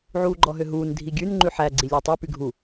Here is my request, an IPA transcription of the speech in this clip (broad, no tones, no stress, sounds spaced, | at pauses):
ʕ uː ɡ͡ǃ ɔ ɦ ø ɦ uː n dʱ i ɡʲ ʉ n ŋ͡ǃ ʉ ħ æ ɡ͡ǀ i lʲ æ tˤ ʉ p y ɡʱ u